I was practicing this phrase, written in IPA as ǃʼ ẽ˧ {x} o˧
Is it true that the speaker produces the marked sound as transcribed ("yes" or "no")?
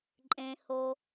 no